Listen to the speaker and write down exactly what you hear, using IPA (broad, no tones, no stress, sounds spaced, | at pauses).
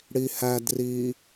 ɽ i h æ d r i